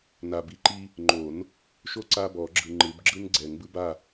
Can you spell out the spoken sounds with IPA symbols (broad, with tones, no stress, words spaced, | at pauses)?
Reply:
na˨bi˨˥ǃi˦ | ŋ͡ǃo˨˩˦n | ʃo˦ ǀa˦bɔ˨˩˦ ɡ͡ǁɯ˨ ŋ͡ǃɯ˨˩˦bɡ͡ǁɯ˦n ɡ͡ǀɛ˨˩˦ŋbɯ˦ ba˦˨